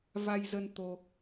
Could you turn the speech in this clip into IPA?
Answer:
va˧jzə˧n t̪o˧

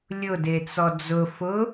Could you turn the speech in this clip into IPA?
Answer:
lʲʊdet͡sɔ d͡zʊ fʊ

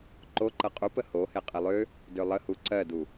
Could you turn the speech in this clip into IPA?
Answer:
ǃoǃɤ qʼupə ho heqʼelˠø | dølˠəhu ǀɜdu

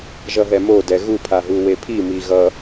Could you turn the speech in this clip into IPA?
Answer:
ʒʌɦɛmo dɛɣu pʰaɦuwepʰi miɣʌ

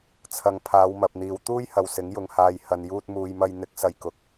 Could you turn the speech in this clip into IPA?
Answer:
t͡sʰɐ˧ŋ pʰaː˨˧wmɐ˨p̚n̪iː˨˧w t̪uː˥jhɐ˨w sɪ˨˥ŋ jʊ˧ŋ haː˧j hɐ˨njuː˧t̚muː˨jmɐ˧j n̪ɪ˨˥k̚sɐ˨j kʊ˨˥k̚

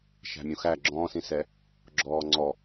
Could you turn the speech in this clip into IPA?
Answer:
ʃæ̤mʲũxæ ɡ͡ǁɔ̃ːsĩsɛ | ɡ͡ǁɔːŋ͡ǀɔ

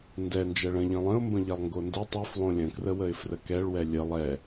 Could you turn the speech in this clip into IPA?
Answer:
ndɛ nd͡ʒɛɭə̃ ʎə̃lˠə̃ʊ̯mbə̃ ʎɛlˠŋɡonde tˤœflˠõ lʲə̃krəwəɪ̯ frəkɛɭwɛ lʲə lˠɛ

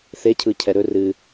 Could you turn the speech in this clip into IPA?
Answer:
θecʰɯcʰɛ ɾɵ rɨ

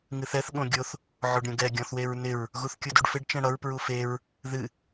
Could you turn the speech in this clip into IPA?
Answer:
ŋɨθɛθ ɠõɡʲoθ | ʕoɖɾʲõɡɛ ɡʲɔ̃θweɹnɪɹ | ɣuθkʲuduɖfɪɖ t͡ʃɛ̃ɽʌɹ pɹufeɹ | ðɨ

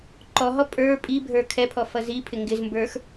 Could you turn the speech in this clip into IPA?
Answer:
ǃɔɦɔ pʼə˞ pʼibʱə˞ kʰɛpʰɔ fʌzipʰɪ ŋɡɪzmbə˞x

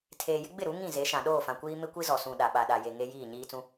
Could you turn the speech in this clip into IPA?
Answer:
tʰeː˨jɪ˦ɡ͡bɪ˦˨ɾu˨˦ ŋĩ˦˨ ze˨˦ʃã˨ ɗoː˦˨fã˨kʷiː˦ mɪ˦kʷi˦zɔ˨sũ˨ ɗa˨ɓa˨ ɗa˨je˨ ŋe˦ jiː˦˨ɲiː˦t͡sũ˦

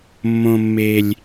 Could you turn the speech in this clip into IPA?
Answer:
mːõ˦mːe˦lʲ

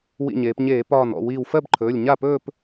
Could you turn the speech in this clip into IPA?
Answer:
wḭ˧˩ɲeː˩˧pɲeː˧˩˧ pɒː˧˩nɔ̰˥˩ wiː˧˩wfɜ˥˧bǃʰɵː˩˧˩lʲ ɲa˥˩pɵː˥˧p

